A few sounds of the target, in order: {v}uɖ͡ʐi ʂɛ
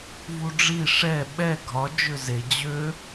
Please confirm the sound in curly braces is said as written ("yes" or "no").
yes